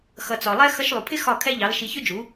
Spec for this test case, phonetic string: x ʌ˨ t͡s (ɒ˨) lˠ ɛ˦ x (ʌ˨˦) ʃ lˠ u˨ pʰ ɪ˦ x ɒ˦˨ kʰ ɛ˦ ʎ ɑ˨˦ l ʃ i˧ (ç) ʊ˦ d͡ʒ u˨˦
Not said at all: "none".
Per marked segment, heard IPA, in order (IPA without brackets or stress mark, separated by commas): ɒ˨, ʌ˧, ç